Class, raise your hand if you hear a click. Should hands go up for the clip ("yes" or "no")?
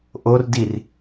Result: no